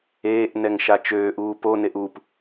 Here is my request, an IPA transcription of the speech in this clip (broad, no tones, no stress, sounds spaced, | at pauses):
eː ʔ n ɛ ŋ ʃ a t͡ʃ øː ʔ uː p o n e ʔ u p